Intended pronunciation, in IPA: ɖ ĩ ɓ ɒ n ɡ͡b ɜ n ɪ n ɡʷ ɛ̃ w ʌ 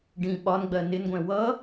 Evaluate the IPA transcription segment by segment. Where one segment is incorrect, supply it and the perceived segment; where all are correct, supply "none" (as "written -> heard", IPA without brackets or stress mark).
none